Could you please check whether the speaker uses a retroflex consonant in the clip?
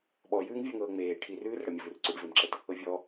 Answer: yes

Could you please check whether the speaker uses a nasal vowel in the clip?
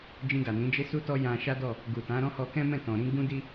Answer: yes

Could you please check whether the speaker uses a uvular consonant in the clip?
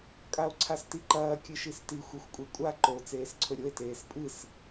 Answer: no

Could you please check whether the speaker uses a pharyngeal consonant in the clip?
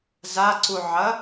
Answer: yes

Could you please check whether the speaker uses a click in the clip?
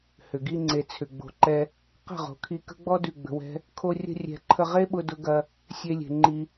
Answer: yes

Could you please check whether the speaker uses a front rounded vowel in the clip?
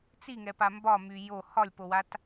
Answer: yes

